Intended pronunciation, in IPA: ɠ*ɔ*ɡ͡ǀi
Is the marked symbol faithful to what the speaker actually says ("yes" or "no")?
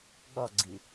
yes